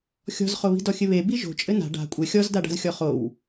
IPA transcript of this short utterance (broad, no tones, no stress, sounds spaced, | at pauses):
xʲ ɔ̤ z χ o β i̤ d ɔ xʲ ɘ β e b i ʒ o̤ t͡ʃʼ ɘ n a̤ ɖ a̤ kʷʼ ɘ xʲ ɔ z d a ɖ a̤ z xʲ ɔ χ o w